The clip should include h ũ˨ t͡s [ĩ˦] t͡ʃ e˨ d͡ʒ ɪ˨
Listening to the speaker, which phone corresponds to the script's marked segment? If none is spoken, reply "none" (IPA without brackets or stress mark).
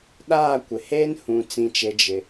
ĩ˨